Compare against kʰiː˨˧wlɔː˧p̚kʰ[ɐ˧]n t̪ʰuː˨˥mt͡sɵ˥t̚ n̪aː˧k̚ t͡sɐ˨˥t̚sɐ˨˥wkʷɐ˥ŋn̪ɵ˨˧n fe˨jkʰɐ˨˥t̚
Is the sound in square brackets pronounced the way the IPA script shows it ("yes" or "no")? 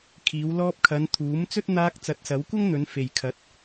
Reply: no